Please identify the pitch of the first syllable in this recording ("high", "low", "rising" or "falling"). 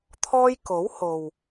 high